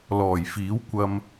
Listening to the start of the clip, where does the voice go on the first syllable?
low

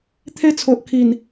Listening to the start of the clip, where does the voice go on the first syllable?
high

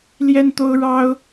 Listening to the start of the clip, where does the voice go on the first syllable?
high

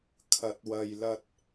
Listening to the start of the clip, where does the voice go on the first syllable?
rising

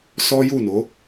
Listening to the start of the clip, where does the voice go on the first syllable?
high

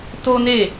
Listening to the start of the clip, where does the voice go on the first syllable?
high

